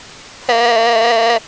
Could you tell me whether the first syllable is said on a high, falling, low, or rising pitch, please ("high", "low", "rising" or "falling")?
high